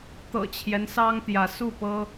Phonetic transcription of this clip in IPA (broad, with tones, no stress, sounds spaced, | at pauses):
t̪ ɤ̰˨˩ t͡ɕʰ j ɛ˦ n s ɑ˦ ŋ t̪ j ä˨˦ s u˥˨ p ɤ˦